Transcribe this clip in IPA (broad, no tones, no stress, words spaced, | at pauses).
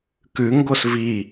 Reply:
kʉŋɡos vi